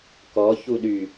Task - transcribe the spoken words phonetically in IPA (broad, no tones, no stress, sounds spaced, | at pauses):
k ɔ ç u ɗ y